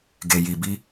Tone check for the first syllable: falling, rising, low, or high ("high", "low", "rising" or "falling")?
low